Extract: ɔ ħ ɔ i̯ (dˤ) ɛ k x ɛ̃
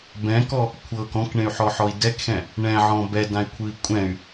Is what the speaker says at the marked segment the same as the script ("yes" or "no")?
no